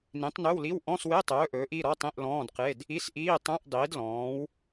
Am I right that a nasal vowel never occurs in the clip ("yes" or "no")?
no